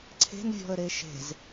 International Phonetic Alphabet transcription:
ǀʰ e̤ n vʲ ɔ̤ ə̯ ɾ e ʃ e̤ z

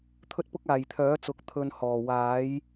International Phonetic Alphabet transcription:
t̪ʰ ɵ˥ t̚ p ʊ˥ k̚ aː˨˩ j t̪ʰ œː˨˥ t͡s ʊ˨˥ k̚ t̪ʰ ɵ˨ n h ɔː˨˩ w aː˨˥ j

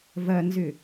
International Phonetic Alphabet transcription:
v ɐ n z ʏ

